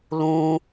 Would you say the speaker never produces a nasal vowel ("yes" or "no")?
no